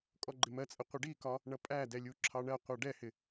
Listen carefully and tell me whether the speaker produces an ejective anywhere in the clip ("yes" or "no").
yes